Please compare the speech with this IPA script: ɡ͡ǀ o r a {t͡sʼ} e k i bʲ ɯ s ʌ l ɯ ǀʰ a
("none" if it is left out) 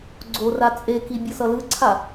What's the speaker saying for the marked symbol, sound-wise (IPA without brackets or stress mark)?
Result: t͡sʼ